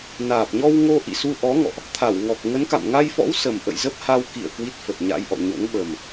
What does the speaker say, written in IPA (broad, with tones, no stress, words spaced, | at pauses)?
naː˨˩p̚ɲɔ˧wŋo˧ ʔḭ˧˨su˧ʔɔ˨˦ŋɔ̰˧˨ʔ | t̪ʰa˧˩wŋɔ˨˩k̚ ŋə˨˦nka̰˧˨m ŋa˧jfɔ̰˧˥w sə˨˩m ʔə̰˧˨jzə˦˥p̚ha˧w kḭ˧˨ə̯ kwi˦˥t̚fə˨˩t̚ ɲa̰˧˥jʔɔ̰˧˨ ɲo̰˧˥ŋɓə˨˩m